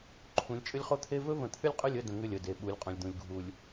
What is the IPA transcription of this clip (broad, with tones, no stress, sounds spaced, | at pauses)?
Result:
ǃʰ ũ˨˦ lʲ t͡ʃʼ ʏ˦ lʲ χ o˦ t̪ʰ e˦ v ɵ˦ v ə̃˨˦ t̪ʰ ʏ˦ lʲ qʼ ʏ˦˨ lʲ ə˦˨ d ə̃˨ ŋ ʏ˦˨ lʲ ə˨ d e˨ ɓ u˨˦ lʲ qʼ ũ˨ lʲ d̪ ũ˨ lʲ ɡʱ u˨ lʲ